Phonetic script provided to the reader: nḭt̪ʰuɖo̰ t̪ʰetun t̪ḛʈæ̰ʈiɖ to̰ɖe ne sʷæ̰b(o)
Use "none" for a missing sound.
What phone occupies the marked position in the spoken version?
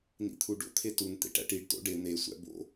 o̰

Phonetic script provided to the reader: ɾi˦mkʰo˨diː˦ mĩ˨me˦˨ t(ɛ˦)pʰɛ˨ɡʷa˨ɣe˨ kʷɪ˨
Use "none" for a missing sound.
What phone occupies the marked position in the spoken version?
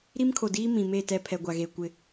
ɛ˦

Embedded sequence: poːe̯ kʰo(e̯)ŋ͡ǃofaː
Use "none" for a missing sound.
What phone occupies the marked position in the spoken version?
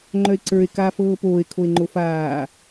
e̯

